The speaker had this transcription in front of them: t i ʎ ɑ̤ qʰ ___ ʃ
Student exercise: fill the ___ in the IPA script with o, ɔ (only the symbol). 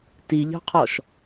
ɔ